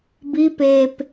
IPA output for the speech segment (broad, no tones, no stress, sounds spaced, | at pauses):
b i p eː p